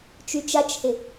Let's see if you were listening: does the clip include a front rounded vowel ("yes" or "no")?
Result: yes